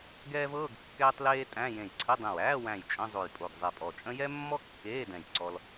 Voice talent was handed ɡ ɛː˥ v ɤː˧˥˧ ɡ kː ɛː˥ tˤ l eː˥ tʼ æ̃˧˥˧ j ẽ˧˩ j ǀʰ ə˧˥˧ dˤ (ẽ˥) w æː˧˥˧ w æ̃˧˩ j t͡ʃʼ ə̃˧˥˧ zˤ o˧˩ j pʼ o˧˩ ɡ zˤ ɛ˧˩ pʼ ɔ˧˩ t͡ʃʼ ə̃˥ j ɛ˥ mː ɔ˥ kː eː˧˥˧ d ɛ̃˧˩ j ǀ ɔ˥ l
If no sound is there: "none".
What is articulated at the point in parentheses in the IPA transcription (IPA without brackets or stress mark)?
ẽ˧˩